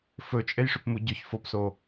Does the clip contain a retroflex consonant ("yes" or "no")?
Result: yes